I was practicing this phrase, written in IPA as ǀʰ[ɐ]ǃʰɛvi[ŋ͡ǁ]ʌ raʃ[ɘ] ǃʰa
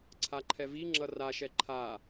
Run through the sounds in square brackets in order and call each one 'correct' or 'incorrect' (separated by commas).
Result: incorrect, correct, incorrect